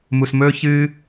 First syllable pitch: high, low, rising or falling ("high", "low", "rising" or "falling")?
low